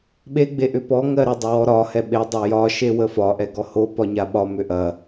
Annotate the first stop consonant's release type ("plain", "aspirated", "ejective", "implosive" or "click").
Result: implosive